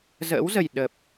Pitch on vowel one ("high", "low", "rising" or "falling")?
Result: rising